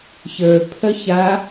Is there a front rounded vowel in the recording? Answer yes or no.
yes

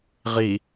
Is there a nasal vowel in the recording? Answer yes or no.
no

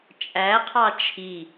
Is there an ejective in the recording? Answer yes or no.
yes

